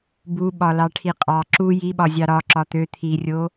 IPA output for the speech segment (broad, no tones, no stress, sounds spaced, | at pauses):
b u ɓ ɒ l ɑ ʈʰ i qʼ ɑ ǁ u j i ɓ ɒ zʲ ɑ ɾ ɒ ǁ ɒ t̪ ø t̪ʰ i rʲ o